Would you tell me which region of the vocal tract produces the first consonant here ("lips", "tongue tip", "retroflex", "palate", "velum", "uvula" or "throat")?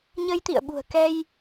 palate